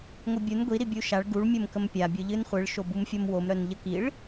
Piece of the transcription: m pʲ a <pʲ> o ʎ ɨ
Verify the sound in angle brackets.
incorrect: bʲ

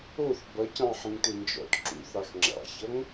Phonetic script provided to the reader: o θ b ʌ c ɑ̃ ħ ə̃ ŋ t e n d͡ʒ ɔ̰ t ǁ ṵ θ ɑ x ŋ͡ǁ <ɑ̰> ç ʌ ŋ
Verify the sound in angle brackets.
correct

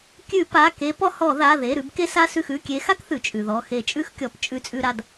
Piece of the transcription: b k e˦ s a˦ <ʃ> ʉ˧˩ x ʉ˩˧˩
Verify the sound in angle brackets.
incorrect: s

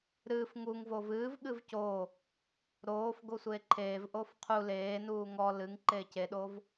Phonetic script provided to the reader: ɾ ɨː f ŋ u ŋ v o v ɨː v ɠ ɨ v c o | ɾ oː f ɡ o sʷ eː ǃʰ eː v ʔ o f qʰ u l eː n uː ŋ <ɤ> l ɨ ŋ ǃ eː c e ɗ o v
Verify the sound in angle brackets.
incorrect: ɔ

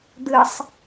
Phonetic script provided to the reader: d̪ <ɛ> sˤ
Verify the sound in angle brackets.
incorrect: ɨ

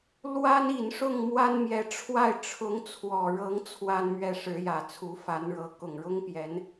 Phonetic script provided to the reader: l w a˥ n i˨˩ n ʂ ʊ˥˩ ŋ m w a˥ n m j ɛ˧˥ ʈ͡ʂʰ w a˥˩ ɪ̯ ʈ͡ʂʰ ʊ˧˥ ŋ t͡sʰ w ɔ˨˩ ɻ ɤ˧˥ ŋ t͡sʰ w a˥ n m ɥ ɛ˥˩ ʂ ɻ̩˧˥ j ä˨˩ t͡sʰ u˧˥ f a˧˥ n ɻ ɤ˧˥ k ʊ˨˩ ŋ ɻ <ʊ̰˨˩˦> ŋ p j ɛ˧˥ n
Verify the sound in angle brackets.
incorrect: ʊ˥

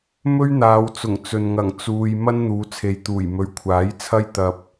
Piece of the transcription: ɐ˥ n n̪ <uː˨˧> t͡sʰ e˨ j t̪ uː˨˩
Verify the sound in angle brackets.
correct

